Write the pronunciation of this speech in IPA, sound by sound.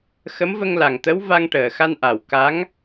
x ə˧˥ m v ə˧ ŋ l a˨˩ ŋ t̪ ə˧˥ w v a˧ ŋ ʈ əː˨˩ x a˧ n ʔ a˨˩ w k a˧˥ ŋ

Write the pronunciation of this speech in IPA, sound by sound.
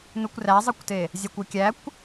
n u kʷ r æ zˤ ɯ kʷ t e | zʲ ɑ kʷ ø kʲ æ kʷ

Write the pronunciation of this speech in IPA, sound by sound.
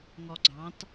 ŋ ɔ ɡ͡ǀ ɑ̃ t

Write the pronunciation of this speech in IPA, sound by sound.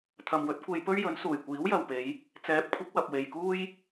t̪ʰ ɐ˨ m w ɵ˨˥ t̚ kʷ e˧ j p ɵ˥ ɥ j ɵ˨˥ n s uː˨˩ j kʷ iː˨˥ w j ɐ˨ w p e˨˧ j | t͡s ɛː˨˥ p̚ kʷʰ ɪ˨˥ k̚ w ɐ˨ p̚ w e˨ j k uː˥ j

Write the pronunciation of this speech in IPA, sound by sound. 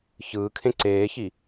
ç ɯː kʰ ẽ ǀ eː ç i

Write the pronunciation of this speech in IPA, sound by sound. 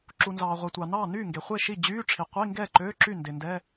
ǁ u˩ n z ɑː˩ ʁʷ ɛ˩ tʷ ɑ˩ n ɑː˥˩ n yː˥˩ ŋ ɡ e˩ χʷ e˥˩ ʃ i˥˩ d͡ʑ yː˧˥˧ ʈ͡ʂʰ i˩ qʷ i˧˥˧ ŋ ɡ ɛː˥˩ ǃ øː˧˥˧ ǁ y˥˩ n d e˩ n d ɛ˧˥˧

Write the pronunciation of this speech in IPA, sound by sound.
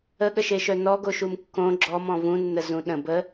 ə ɠ ə ʃ e ʃ œ n ɔ ɡ o ʃ u m kː õ ɡ͡ǁ ɔ m ɔ̃ v ũ nː ə z ũ ɗ ə̃ b ə

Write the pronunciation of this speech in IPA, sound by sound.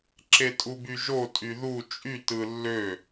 ǁ e tʼ u b y ʒ o tʼ y ð u t͡ʃʼ y t ɯ lː ø

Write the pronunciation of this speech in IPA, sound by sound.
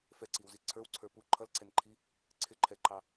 f ɛ ǀ i w z i ǀʰ ə˞ w ǀʰ ə˞ p u ǃʰ ʌ l ǀ ɛ n ǃʰ i | ǀʰ ɪ ǃʰ ɛ ǃ ɑ

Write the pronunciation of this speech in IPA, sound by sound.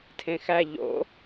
tʰ ẽ x æ ʎ o̰

